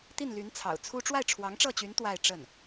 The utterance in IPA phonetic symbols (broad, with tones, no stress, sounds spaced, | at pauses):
t̪ i˥˩ n l y˧˥ n t͡sʰ ɑ̰˨˩ ʊ̯ t͡sʰ u˥ ʈ͡ʂ w a˥˩ ɪ̯ ʈ͡ʂʰ w ɑ˧˥ ŋ ʈ͡ʂ ɤ˥˩ t͡ɕ y˧˥ n t̪ w a˥˧ ɪ̯ ʈ͡ʂ ə˥˩ n